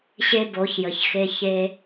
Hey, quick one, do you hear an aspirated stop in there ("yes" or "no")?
no